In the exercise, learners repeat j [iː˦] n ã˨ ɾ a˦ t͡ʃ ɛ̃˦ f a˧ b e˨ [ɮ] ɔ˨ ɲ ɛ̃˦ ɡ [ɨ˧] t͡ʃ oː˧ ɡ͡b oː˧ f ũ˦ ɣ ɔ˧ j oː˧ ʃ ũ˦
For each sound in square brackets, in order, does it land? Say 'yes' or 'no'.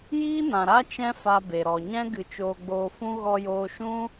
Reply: yes, no, yes

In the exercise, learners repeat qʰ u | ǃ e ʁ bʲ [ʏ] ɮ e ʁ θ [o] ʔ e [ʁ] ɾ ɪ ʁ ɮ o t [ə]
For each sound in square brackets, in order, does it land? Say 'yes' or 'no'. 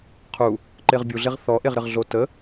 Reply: no, no, yes, yes

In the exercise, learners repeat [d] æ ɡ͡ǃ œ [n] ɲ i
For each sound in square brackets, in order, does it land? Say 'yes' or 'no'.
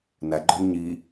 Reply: no, yes

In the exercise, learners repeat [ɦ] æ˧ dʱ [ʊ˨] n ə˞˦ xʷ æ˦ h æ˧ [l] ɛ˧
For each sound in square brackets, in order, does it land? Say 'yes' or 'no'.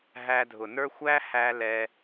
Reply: yes, yes, yes

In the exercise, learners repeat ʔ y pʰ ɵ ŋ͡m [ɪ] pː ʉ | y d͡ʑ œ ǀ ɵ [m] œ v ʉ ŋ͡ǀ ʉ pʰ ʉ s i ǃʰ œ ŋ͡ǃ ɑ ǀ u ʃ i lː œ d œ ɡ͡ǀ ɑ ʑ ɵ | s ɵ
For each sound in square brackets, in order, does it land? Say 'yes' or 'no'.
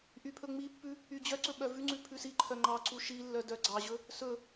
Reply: no, no

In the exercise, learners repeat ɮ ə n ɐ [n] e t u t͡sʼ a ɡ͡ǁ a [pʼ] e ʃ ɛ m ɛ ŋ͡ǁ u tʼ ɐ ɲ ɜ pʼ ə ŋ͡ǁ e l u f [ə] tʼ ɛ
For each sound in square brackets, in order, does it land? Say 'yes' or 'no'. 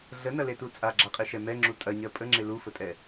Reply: no, no, yes

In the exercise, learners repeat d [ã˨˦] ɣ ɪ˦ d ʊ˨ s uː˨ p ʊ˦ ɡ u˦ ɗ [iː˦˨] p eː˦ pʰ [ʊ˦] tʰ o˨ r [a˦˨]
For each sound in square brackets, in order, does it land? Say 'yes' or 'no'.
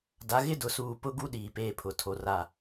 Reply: no, no, no, yes

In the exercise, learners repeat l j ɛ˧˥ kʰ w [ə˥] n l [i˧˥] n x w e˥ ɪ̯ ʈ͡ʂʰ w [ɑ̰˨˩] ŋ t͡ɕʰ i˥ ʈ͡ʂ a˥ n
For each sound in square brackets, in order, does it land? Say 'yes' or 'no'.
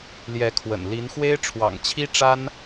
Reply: no, yes, yes

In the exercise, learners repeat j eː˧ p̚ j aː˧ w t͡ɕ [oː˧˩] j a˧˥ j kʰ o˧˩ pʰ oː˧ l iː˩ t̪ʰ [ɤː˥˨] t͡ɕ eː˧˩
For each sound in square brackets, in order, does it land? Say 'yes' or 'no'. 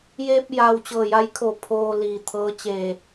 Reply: no, no

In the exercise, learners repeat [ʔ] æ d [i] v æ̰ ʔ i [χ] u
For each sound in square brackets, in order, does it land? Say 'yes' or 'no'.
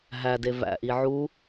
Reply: no, no, no

